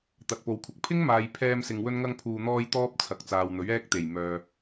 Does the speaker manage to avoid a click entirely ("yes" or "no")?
yes